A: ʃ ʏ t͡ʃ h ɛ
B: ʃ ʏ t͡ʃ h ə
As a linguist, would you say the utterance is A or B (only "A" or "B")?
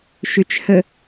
B